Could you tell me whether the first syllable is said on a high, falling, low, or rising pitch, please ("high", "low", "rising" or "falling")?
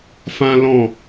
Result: high